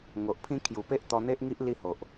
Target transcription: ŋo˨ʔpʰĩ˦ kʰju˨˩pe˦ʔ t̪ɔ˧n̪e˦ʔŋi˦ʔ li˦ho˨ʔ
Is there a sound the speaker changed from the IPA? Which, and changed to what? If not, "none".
none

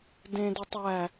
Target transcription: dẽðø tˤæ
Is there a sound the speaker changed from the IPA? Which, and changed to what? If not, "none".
ð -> d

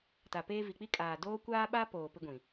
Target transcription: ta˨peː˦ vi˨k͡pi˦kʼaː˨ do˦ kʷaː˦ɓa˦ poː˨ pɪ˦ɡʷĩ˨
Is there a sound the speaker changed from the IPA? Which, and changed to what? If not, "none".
o˦ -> oː˦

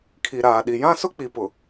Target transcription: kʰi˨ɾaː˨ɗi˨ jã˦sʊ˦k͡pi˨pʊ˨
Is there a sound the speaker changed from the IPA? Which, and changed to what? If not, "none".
none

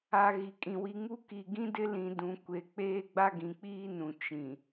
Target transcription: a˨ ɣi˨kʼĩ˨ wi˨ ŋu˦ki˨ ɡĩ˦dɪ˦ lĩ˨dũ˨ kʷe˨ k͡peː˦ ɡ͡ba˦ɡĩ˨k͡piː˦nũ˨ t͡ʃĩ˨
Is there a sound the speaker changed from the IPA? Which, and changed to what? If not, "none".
none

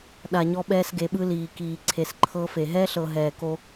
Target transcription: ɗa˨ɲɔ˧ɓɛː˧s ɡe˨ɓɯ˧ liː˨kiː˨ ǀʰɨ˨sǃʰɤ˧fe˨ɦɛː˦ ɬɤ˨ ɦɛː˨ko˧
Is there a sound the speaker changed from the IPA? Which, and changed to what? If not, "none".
ɨ˨ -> e˨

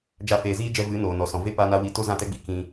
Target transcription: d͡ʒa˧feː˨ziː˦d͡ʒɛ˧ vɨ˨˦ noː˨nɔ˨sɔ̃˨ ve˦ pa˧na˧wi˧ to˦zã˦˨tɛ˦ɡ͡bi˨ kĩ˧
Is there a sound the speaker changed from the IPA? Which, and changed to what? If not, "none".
none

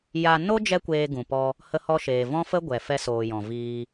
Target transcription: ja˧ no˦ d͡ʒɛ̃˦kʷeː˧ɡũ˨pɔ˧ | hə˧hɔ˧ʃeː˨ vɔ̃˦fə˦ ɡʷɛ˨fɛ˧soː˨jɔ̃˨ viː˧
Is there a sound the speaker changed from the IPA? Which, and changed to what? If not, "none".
ɛ̃˦ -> ɛ˦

